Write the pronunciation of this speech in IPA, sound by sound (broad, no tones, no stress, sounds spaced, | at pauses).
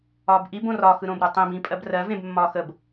ɒː b ʔ i b õ r ɒ x ɯ ɾ õː b ɾ u tˤ ĩ b ĩ pʼ ɜ b r ɜ v ẽ b mː ɒː x ə b